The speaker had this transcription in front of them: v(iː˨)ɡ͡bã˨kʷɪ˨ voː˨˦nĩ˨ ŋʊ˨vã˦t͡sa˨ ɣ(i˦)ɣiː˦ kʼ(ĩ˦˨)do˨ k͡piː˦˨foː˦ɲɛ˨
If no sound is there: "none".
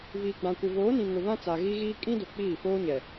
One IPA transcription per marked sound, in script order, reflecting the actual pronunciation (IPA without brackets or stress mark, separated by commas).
iː˨, i˦, ĩ˦